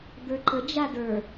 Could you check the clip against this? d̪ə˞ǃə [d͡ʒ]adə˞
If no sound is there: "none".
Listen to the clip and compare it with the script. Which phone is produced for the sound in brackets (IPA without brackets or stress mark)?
d͡ʒ